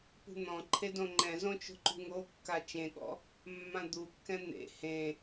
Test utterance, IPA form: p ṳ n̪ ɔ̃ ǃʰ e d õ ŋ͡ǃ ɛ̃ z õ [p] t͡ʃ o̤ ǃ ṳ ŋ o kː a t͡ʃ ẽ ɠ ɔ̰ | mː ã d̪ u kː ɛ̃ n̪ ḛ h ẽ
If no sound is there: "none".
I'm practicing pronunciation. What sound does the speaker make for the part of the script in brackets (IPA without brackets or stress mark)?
none